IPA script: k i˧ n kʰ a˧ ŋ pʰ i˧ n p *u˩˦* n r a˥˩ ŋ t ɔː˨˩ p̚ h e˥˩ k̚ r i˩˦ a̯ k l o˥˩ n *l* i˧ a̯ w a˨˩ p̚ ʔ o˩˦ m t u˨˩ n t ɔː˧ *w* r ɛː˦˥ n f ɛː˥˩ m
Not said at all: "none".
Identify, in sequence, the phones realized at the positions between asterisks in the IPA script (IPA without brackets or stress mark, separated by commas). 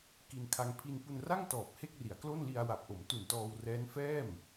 u˧, l, w